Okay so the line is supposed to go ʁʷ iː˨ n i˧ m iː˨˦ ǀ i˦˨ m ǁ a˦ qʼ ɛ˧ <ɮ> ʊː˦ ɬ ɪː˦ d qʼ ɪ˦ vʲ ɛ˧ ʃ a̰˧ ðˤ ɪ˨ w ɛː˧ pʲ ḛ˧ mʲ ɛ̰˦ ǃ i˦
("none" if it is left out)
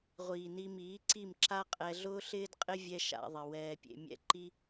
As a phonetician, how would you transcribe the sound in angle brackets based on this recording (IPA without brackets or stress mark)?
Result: ɮ